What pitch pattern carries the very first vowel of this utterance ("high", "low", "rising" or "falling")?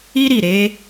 high